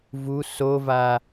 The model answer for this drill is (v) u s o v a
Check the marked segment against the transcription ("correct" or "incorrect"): correct